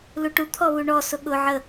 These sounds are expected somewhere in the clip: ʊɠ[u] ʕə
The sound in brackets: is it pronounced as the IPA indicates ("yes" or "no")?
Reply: no